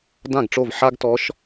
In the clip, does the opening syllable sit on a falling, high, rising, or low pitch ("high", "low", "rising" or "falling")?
falling